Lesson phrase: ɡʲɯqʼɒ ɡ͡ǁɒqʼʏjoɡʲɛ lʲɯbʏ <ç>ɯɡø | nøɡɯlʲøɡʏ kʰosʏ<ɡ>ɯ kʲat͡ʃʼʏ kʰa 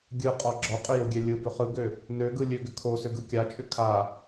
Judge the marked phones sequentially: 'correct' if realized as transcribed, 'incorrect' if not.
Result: incorrect: χ, correct

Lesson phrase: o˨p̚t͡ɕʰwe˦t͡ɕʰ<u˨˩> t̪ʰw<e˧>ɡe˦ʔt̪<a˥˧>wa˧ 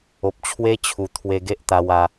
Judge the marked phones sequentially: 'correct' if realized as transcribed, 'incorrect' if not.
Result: correct, correct, incorrect: a˧

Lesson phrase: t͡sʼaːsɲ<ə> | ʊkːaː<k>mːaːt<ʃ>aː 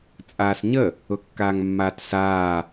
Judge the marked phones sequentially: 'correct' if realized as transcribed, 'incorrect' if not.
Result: correct, incorrect: ŋ, incorrect: s

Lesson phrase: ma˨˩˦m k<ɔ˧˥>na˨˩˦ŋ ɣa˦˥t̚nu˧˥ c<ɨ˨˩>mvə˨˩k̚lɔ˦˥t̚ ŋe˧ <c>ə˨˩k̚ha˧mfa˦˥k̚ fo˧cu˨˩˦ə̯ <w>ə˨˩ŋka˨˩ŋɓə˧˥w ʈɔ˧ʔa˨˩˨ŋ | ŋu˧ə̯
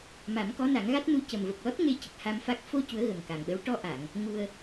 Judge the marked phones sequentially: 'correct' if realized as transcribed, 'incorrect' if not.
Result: correct, incorrect: ə˨˩, correct, incorrect: ɣ

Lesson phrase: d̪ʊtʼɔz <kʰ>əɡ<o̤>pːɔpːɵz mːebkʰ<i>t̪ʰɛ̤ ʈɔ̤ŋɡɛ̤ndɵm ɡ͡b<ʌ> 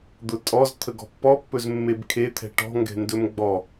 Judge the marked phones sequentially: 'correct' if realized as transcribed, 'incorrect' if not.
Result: incorrect: t̪ʰ, incorrect: ɔ̤, incorrect: e, incorrect: ɔ

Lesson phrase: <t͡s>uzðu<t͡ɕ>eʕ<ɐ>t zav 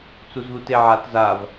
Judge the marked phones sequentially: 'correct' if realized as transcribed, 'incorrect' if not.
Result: correct, incorrect: t, incorrect: a

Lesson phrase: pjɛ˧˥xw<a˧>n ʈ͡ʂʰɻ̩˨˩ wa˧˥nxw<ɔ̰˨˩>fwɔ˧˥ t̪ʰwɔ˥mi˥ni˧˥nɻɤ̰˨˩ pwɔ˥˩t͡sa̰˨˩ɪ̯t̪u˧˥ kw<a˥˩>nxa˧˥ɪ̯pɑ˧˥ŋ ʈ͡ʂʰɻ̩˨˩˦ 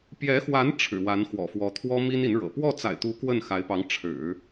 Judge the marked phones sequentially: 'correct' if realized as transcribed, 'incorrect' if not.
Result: incorrect: a˧˥, correct, incorrect: ə˥˩

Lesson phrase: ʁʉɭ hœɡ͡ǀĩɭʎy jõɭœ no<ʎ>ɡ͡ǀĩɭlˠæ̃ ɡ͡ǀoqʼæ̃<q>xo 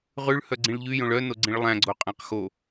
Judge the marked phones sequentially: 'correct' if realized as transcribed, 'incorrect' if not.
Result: incorrect: none, correct

